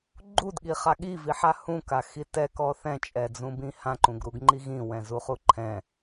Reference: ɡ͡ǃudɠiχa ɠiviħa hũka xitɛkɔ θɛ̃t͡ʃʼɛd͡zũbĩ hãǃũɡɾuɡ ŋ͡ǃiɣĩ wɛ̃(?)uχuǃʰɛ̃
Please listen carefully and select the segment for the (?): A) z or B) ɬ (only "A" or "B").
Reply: A